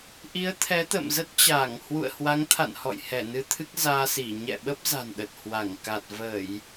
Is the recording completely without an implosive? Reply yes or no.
no